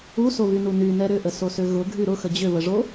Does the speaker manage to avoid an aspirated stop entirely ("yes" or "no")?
yes